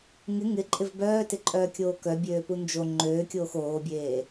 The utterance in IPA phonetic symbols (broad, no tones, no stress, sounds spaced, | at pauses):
ŋ ɪ ŋ ɪ ǃʼ ɪ v b œː t ɪ ǃʼ œː kʲ oː k œ bʲ øː p u n d͡ʒ o ŋ͡ǃ øː kʲ oː x oː bʲ eː